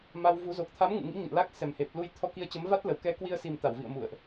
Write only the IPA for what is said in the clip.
ma˧wvu˨˦ zo˨˩k̚t̪ʰa˨˦m ŋɨ̰˧˨ŋḭ˧˥ ɲə̰˧˨nla˦˥k̚ sɛ˨˩mhe˨˩p̚ lu˧j t̪ʰɔ˧ki˧ə̯t͡ɕə˨˦mva˦˥t̚ lə˨˩w kɛ˨˦ kwi˧ə̯si˨˩m t̪a˧˩wvḭ˧˨ə̯mṵ˧˨ə̯ʔ

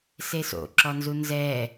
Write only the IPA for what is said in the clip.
seso̰ ǁɔnzunzɛ

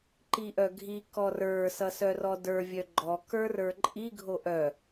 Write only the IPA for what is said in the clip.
ǃiʔœɡʱi kɔrə˞ sʌsœrɔdə˞ vʲœɡ͡ǃɔ kə˞rə˞ǃʼi ɡʱoʔœ

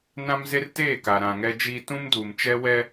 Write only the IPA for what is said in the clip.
nã˦mze˦rteː˦˨ ka˨ɾã˨ŋɛ˦d͡ʒiː˦ tũ˦mduː˨mt͡ʃɛ˦ wɛ˦

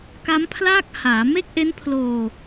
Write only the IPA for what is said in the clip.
ka˦˥mpʰlaː˥˩k̚ haː˩˦ me˥˩k̚ʔe˦˥npʰloː˧

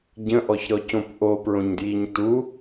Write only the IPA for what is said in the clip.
ɟə̃ʔɔçɾɔcõp ʔopɹõɲdjiɲ tu

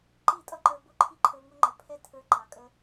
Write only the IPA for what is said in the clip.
ǃi˦˨tʼʌ˦ǃə˞˧bʊ˦˨ ǃʰi˦ǃʰə˞˧ŋʊ˦ŋ͡ǃə˨ pʰɛ˦tʰə˞˧ǃɑ˨kʼə˧

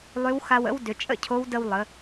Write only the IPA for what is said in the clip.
lˠʏ˧˥wxa˧w ə̰˥wdʏ˩˧ t͡ʃʼə̰˥cʰo˧˥w də˧wlˠə˩˧

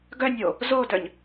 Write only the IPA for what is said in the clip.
ɡœnʲo | zodœɲ

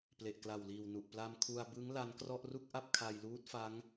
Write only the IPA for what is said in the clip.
ple˨˩ʔkla˨˩wliː˨˩wnu˨˩ʔ pla˧mkʰu˧a̯ bɯ˦˥ŋ la˦˥nkrɔ˥˩ʔ ru˥˩k̚ʔa˥˩p̚kʰa˧jluː˦˥t̚ fa˦˥ŋ

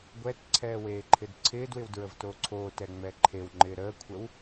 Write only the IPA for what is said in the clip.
ɡʷɛtǀʰɛː weːǃʰɪdǀʰɪːdwɪw dɹəvtoǀʰoːtɛ ŋ͡mɛǃʰewŋ͡ǃɪː ɾəːkʷʰəw

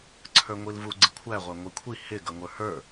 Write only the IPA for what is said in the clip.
ǀʰə˞ŋʷilvu ɡ͡ǀɪkʷʰæ ʁʷæŋʷikʷʰi hɪ ɡʌŋʷə˞hə˞

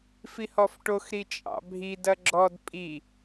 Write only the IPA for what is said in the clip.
fihɔfʈoxɾi t͡ʃʼɑ̰bʱidɐ ɡ͡ǁɔd pʼi

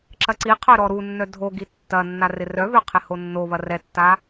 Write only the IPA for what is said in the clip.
ǁɐǀiqʰœ ɾɔɾunːœ dʱoɡi tːɐnːa rɪrœβø qʰɪhonːoβɐ rɛtːa

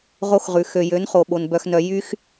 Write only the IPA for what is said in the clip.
ʁo˦xʁʉ˨ xø˨jø˨˦nχo˨ɓo˨n bœ˨xnœ˨ jy˦x

